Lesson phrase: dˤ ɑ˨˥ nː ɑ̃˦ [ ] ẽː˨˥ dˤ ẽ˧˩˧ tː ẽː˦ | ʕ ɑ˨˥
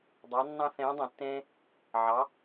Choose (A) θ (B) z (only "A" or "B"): A